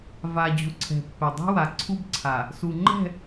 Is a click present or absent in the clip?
present